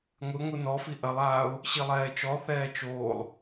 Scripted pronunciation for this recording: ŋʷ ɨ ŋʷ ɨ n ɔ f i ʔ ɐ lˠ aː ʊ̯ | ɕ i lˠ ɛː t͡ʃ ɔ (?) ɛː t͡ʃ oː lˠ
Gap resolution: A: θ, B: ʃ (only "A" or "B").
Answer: A